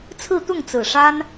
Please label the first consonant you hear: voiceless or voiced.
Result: voiceless